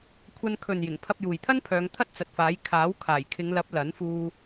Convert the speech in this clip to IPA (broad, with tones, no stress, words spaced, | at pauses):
kʷʰɐ˧nkʰɵ˨njɪ˨˩ŋ pʰɐ˧p̚juː˨jt̪ʰɐ˥n pʰœː˨˧ŋ t̪ʰɐ˥t̚t͡sɐ˨t̚faː˨˥j kʰaː˨˥w kʰaː˨˩jkʰɪ˨˧ŋlɐ˨˥p̚ lɐ˨˥nfuː˧